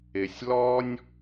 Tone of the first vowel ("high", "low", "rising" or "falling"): low